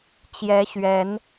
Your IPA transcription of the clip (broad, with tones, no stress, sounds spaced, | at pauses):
t͡ɕ j ɛ˨˦ ɕ ɥ ɛ˨˦ n